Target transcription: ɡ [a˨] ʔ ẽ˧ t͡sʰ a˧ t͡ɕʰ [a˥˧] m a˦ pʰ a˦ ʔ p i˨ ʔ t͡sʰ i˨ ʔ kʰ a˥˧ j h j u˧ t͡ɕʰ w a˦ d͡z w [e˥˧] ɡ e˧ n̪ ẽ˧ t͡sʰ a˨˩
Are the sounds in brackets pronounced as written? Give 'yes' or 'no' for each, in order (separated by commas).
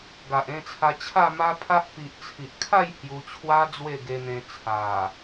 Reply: yes, yes, yes